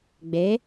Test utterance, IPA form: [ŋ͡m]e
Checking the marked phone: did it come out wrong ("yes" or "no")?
yes